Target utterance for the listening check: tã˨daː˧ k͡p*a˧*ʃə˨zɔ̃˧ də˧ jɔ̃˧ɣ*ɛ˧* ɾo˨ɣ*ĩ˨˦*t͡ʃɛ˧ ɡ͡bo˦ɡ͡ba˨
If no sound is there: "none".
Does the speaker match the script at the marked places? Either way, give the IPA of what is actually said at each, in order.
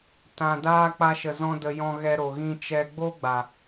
a˧, ɛ˧, ĩ˧

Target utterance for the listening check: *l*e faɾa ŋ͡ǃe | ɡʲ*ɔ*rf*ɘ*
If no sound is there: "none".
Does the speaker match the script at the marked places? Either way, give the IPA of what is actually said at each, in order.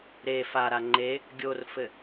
ɾ, o, ɘ

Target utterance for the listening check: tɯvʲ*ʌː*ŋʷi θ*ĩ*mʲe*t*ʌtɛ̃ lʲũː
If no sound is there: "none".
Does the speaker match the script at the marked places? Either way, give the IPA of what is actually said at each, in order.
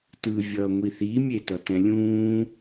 ʌː, i, t

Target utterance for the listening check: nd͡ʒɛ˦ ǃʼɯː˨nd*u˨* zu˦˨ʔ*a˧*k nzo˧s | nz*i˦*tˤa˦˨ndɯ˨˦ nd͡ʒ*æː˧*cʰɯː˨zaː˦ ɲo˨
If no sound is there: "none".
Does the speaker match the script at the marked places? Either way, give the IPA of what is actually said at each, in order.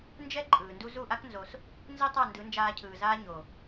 u˦, a˦, i˦, aː˧

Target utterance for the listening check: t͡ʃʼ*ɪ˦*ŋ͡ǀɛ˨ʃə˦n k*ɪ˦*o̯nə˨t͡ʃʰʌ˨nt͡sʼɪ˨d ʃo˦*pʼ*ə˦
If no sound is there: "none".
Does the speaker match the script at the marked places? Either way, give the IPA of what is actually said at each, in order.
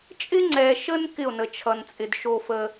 ɪ˦, ɪ˦˨, f

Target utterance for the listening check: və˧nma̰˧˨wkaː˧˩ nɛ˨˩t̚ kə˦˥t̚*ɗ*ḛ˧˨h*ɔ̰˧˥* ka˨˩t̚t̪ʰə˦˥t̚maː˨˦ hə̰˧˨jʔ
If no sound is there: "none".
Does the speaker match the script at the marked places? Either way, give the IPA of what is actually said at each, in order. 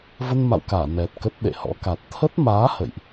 ɗ, ɔ̰˧˥

